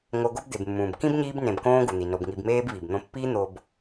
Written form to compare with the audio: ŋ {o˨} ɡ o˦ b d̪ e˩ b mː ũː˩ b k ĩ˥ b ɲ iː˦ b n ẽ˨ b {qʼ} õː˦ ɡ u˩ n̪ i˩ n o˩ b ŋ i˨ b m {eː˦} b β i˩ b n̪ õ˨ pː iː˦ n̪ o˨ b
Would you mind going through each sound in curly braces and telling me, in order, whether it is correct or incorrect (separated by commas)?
correct, incorrect, correct